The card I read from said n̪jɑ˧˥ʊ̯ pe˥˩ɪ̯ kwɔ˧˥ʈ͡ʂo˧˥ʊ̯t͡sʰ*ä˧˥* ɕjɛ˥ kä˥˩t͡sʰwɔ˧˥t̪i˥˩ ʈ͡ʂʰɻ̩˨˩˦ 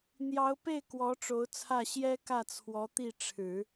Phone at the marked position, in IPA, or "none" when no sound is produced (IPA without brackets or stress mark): ä˥˩